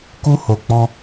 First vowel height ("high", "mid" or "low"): high